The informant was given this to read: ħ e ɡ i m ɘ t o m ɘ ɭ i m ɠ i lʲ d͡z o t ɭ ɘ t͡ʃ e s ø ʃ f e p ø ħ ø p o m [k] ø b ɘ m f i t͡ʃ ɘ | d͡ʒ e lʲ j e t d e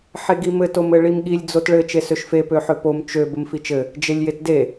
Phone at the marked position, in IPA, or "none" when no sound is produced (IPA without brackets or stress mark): t͡ʃ